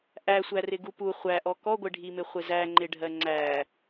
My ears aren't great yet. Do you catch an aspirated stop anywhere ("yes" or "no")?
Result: no